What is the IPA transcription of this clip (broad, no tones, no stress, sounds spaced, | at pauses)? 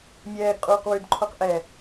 mʲ ɛː ɡ qʼ uː q w ʉ d ǃʰ o q ʔ ɛ